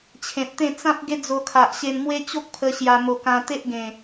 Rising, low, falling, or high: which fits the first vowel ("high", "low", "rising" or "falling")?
low